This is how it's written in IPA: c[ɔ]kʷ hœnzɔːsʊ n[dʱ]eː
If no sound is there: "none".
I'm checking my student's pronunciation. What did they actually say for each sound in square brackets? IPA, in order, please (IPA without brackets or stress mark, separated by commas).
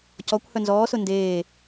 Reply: ɔ, d